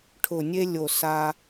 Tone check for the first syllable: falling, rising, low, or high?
low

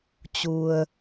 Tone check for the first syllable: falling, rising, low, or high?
low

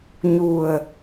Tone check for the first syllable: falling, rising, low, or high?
low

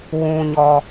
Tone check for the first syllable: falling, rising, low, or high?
low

